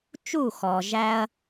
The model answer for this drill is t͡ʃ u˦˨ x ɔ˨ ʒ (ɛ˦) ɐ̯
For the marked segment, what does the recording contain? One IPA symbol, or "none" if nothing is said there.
æ˦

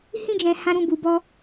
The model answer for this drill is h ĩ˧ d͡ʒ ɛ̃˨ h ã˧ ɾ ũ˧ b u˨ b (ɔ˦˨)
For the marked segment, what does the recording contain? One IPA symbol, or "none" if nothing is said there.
ɔ˧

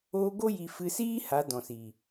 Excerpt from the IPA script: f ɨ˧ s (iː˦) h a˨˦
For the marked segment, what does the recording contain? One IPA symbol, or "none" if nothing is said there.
iː˦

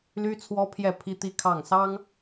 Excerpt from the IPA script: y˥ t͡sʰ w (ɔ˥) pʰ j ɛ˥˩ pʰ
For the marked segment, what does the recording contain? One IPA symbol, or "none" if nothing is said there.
ɔ˥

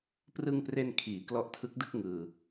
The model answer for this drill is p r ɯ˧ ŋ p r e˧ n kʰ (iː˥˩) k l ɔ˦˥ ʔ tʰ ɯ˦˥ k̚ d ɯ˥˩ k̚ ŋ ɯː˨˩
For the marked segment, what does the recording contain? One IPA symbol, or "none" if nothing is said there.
iː˩˦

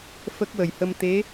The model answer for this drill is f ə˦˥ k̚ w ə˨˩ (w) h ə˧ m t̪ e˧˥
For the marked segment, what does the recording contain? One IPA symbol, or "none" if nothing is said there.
j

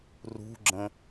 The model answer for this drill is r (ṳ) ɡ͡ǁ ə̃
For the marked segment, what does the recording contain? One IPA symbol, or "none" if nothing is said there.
ṳ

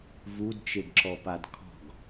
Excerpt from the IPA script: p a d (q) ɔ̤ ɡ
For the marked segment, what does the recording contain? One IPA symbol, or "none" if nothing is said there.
kʰ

